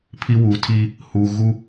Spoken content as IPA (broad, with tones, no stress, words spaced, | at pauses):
pʰi˦wu˨˦tʰiː˦ | huː˨ ɣu˦